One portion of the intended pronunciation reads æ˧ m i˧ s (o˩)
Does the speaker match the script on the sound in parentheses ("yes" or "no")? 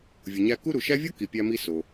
yes